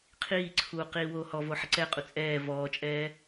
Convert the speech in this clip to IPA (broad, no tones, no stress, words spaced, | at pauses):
qʰiːǀʰuː qiːwoːhɔvo ħɪǀɛqʼu t͡sʼɛː vɔːt͡ʃʼɛː